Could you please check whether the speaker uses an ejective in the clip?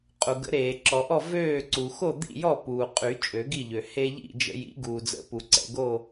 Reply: yes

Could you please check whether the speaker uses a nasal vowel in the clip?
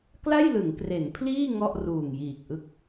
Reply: no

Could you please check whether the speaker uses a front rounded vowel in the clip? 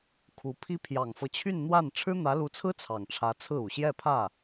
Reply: yes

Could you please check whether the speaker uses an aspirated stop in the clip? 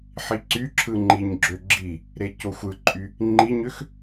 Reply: yes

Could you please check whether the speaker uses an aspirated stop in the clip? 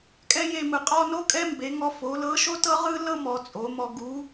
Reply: no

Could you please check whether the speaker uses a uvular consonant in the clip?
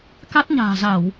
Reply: no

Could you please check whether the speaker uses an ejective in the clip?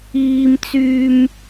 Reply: no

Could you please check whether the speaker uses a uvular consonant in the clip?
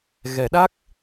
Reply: no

